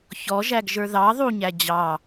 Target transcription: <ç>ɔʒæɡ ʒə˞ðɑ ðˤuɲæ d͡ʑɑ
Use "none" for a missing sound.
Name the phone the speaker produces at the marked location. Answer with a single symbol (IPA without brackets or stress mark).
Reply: ç